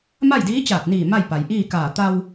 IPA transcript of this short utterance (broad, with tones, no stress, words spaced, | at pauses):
ma˥˨jdiː˧˥t͡ɕaː˧˩t̚niː˧˩ ma˥˨jpa˩jʔiː˥˨ kaː˧˩ t̪a˧w